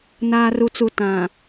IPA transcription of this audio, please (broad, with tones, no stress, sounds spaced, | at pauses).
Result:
n aː˨ r u˨ t͡s u˨ t ã˨